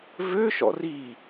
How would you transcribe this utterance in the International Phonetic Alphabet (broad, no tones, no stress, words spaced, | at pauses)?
vø ʃɔ̰ri